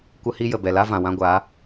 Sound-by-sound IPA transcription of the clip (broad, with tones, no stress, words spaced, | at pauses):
kʷə˦hi˦jə˨ bɛ˨la˦vã˨wã˧ ɡʷa˨˦